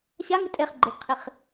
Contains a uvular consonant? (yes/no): yes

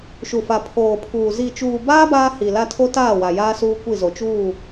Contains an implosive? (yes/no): no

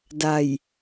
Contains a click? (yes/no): no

